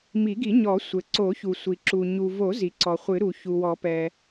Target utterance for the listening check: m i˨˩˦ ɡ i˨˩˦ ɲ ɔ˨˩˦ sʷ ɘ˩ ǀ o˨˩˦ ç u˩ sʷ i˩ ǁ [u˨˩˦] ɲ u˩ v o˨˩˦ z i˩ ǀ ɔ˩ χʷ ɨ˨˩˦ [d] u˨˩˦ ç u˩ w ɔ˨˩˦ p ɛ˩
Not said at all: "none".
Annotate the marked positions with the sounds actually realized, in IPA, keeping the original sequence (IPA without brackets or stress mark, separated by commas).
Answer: u˩, ɾ